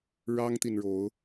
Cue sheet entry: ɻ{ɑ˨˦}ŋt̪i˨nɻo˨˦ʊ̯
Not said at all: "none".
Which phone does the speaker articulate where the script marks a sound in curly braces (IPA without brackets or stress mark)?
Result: ɑ˦